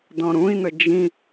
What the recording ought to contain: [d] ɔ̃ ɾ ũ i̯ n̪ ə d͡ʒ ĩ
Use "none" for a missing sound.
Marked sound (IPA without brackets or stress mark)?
d